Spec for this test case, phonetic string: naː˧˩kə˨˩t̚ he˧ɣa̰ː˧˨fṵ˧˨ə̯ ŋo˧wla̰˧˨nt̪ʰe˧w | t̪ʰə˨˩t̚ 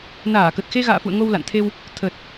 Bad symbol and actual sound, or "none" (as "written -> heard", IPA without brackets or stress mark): h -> x